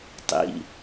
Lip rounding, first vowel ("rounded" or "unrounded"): unrounded